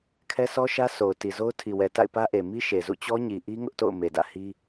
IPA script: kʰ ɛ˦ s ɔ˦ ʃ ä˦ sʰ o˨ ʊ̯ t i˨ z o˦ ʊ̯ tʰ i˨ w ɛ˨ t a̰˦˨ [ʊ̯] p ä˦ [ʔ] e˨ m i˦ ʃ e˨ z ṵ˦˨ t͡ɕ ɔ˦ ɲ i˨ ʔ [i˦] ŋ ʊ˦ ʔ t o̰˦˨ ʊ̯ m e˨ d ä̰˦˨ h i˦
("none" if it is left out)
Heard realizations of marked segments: ɪ̯, ʔ, i˦

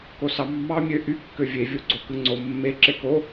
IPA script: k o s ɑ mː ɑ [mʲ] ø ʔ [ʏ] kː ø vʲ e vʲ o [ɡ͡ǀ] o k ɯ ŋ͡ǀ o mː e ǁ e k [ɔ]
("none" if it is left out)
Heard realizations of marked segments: mʲ, y, ɡ͡ǀ, o

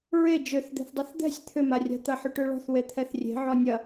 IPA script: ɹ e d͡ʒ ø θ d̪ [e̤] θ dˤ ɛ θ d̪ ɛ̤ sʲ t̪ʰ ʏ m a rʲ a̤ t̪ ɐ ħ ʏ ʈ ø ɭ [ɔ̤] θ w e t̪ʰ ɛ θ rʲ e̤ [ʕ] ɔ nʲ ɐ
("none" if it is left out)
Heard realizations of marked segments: e̤, ɔ̤, ʕ

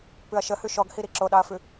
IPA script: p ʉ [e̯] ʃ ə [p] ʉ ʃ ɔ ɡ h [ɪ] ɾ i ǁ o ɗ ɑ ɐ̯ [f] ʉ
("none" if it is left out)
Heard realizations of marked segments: ɐ̯, h, i, f

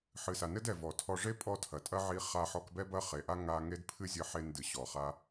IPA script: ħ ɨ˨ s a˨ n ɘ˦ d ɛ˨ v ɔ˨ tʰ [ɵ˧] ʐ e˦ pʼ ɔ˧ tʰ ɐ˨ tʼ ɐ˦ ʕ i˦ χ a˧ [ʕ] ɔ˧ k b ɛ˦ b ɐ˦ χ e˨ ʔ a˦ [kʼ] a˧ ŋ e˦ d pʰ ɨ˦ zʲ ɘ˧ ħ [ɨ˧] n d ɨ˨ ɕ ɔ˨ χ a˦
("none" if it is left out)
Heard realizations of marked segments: ɔ˧, ħ, ŋ, e˧

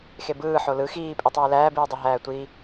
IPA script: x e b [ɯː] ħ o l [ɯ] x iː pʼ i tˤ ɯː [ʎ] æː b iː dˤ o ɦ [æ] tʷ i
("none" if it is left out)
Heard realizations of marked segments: ɯː, ɯ, l, æː

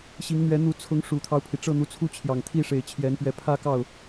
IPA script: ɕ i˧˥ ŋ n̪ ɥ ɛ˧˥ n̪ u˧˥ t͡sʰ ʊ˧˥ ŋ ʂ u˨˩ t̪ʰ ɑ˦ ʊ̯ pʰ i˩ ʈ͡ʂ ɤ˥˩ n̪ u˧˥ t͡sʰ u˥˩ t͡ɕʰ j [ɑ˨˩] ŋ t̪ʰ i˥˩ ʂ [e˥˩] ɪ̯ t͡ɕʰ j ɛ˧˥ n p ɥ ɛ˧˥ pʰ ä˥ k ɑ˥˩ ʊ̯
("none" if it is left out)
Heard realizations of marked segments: ɑ˨˩, e˨˩

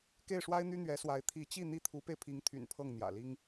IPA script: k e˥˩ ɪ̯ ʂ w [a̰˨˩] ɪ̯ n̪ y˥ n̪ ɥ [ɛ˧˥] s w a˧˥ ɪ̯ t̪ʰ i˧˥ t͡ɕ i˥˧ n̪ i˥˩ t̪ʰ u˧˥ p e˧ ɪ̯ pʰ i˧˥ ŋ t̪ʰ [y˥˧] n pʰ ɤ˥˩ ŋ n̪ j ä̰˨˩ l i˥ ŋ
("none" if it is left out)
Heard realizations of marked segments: a˥, ɛ˧˥, y̰˨˩

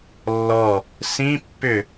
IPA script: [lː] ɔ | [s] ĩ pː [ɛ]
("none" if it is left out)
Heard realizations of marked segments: lː, s, ʏ

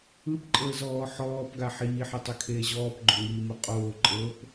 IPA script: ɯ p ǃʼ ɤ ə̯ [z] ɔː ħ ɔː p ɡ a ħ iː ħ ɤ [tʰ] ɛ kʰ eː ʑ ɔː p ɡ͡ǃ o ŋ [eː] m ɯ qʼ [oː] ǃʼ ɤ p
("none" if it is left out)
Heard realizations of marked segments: z, tˤ, iː, oː

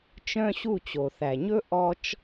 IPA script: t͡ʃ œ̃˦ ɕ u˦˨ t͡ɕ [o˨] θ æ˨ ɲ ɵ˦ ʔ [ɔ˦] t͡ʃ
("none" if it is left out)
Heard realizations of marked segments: o˨, ɔ˦

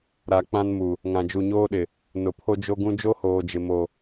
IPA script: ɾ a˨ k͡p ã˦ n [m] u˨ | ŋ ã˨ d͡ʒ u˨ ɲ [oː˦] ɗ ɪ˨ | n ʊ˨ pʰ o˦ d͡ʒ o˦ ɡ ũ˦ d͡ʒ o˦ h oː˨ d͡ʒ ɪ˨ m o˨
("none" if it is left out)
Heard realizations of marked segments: m, oː˦

